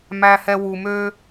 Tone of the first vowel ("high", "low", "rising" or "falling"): high